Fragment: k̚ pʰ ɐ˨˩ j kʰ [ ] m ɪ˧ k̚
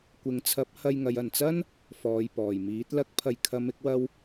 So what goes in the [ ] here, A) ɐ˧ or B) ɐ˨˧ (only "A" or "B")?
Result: B